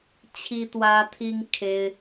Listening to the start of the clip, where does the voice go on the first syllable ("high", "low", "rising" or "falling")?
high